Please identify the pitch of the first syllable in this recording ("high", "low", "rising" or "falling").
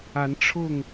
rising